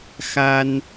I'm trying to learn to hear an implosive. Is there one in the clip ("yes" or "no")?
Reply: no